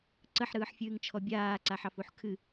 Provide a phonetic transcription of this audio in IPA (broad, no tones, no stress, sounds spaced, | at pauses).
ǀ ə ħ ɾ ɯː ħ fʲ ɨː ŋ t͡ʃʰ ɔ bʲ aː ǀ a ħ ɑ f u ħ kʰ ɨ